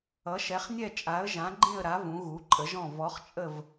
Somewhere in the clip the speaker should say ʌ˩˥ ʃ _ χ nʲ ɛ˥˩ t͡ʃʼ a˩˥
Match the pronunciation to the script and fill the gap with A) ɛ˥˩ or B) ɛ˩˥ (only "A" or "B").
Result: B